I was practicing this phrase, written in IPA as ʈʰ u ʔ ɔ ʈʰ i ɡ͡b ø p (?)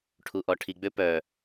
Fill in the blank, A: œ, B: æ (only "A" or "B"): A